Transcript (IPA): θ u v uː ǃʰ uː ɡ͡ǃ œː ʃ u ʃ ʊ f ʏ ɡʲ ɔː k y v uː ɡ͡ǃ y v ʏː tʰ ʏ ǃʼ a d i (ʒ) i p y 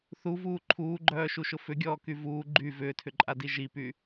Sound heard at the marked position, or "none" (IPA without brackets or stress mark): ʒ